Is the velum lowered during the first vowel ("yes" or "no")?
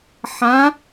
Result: yes